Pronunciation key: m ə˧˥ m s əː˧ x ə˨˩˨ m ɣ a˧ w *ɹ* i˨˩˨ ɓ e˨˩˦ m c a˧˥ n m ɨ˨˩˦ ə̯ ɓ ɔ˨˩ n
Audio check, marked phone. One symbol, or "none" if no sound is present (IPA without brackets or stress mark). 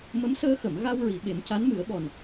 ɹ